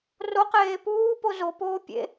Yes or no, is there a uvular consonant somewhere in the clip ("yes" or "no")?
yes